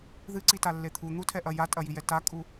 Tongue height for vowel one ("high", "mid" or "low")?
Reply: high